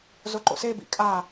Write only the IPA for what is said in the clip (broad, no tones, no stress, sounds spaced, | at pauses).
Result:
z o ǃ o̰ s e b ḭ kʼ a